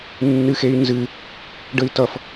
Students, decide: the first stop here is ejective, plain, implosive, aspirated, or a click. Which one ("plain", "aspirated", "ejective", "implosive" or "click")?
plain